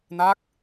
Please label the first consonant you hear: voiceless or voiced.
voiced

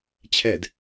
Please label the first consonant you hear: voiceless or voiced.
voiceless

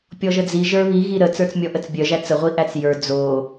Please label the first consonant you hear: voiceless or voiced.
voiceless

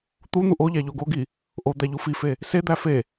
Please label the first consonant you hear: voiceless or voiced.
voiceless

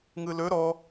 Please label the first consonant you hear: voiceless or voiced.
voiced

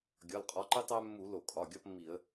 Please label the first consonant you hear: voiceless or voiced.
voiced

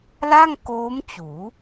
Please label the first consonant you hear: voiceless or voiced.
voiced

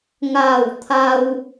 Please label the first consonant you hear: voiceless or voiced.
voiced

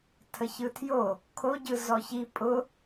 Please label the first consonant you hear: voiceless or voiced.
voiceless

